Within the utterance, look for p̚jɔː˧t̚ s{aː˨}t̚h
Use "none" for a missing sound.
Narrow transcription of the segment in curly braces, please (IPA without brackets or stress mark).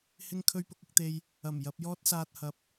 aː˨